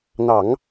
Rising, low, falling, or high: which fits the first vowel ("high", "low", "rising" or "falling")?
low